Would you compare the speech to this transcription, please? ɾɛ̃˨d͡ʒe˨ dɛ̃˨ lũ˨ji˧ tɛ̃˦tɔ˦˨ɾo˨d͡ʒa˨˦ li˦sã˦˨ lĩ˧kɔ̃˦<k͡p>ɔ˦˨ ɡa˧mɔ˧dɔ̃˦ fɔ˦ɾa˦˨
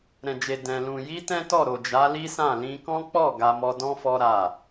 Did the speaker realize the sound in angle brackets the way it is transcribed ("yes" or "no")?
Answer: yes